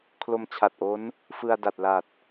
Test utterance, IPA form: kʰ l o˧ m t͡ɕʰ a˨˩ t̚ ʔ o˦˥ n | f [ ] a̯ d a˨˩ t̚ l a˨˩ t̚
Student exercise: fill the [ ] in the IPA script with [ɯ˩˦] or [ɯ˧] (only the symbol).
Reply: ɯ˧